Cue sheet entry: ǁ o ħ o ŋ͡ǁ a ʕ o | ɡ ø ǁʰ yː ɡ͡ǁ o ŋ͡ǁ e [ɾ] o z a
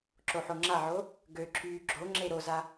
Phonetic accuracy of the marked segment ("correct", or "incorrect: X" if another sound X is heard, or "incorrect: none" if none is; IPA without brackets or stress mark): correct